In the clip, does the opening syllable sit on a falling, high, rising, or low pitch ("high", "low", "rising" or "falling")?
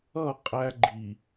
falling